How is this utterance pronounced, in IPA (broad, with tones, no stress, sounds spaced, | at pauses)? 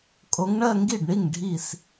kʼ o˨˦ ŋ ɳ ɜ˥˧ ŋ ɡ i˥˩ ɖ ɳ i˥˩ ŋ ɖʱ i˧˩ s